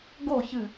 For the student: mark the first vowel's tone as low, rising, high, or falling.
falling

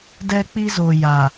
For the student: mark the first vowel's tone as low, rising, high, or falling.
high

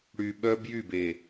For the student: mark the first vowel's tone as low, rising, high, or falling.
low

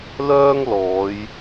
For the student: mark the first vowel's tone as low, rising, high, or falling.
high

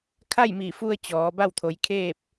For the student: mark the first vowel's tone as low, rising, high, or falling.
falling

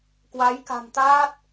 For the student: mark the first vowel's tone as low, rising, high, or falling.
rising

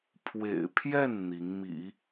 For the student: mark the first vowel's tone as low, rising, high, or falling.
low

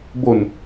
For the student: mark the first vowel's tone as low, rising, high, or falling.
low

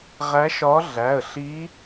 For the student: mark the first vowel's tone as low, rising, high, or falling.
rising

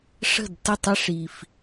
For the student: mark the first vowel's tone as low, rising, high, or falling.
falling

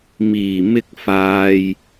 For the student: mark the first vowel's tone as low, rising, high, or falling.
low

